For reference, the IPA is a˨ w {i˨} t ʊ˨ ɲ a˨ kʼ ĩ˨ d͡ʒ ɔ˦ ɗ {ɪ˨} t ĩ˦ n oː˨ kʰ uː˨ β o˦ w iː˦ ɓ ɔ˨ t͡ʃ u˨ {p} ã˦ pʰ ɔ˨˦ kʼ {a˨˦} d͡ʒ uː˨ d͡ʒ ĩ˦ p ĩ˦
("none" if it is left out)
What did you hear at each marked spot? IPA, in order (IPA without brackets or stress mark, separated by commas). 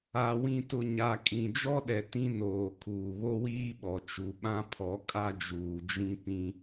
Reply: ĩ˨, ɛ˨, ɓ, a˦